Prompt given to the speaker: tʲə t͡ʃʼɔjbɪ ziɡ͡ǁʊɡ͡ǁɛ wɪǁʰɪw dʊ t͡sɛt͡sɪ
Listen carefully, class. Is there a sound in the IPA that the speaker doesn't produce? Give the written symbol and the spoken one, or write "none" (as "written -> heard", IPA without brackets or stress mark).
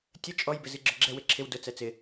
none